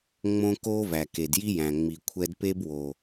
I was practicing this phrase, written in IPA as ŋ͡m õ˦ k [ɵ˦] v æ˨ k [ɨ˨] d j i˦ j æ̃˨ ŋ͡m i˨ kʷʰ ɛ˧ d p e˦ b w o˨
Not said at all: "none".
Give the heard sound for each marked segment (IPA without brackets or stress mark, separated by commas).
o˦, e˨